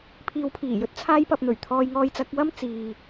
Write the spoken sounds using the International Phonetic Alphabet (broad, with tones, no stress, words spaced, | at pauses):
pʰiː˨˧wpʰiː˨˩jɵ˥t̚ t͡sʰaː˧jpɐ˨p̚n̪ɵ˨˩ɥ t̪ʰɔː˧jŋɔː˧jt͡sɐ˨˥k̚ wɐ˥mt͡siː˨